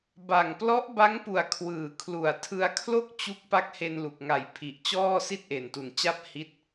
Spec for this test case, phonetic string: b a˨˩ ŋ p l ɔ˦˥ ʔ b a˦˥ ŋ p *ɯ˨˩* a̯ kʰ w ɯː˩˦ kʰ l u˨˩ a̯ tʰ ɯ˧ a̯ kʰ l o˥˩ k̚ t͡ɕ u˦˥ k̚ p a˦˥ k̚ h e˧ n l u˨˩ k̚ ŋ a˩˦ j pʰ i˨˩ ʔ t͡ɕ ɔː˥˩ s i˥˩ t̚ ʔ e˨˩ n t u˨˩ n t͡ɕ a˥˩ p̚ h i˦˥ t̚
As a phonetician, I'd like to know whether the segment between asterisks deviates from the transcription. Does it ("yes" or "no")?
yes